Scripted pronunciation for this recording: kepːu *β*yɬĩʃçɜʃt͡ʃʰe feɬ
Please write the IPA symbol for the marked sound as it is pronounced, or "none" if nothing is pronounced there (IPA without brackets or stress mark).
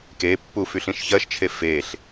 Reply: f